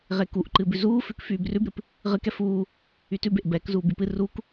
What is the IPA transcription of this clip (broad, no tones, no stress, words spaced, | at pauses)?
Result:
ʁekuʔǃɨbʉ zuːfʉk fyːbrʉbɾɨp | ʁɨkɛ fuː | ytʉbeʔ bɛk zuːbypɨ ruk